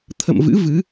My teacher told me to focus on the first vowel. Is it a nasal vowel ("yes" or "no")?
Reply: no